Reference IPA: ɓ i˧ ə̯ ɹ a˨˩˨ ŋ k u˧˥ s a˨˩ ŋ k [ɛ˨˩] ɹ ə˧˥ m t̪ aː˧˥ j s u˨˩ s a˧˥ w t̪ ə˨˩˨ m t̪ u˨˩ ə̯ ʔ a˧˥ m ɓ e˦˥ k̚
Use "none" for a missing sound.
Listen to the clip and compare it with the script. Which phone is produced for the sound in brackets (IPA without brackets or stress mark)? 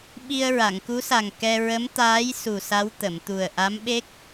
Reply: ɛ˧